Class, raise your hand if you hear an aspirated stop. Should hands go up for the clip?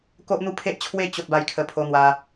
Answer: yes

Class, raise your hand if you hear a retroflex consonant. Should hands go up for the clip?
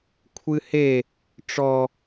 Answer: yes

